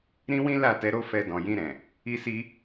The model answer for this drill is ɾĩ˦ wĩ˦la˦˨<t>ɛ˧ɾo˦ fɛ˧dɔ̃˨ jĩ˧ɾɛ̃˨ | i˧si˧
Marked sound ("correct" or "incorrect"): correct